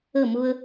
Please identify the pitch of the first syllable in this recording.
falling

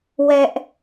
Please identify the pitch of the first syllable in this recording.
high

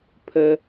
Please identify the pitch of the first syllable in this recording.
low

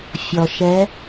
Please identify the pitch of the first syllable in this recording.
low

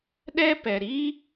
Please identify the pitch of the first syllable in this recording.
high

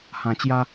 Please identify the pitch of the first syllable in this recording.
low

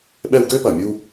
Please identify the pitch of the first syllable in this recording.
high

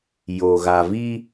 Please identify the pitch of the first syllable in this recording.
low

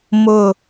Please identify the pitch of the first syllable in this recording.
falling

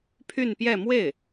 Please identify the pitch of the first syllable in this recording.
falling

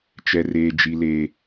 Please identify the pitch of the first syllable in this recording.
high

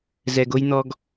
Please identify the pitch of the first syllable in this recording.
low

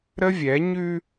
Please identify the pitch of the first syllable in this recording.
high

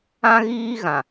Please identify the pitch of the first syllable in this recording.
high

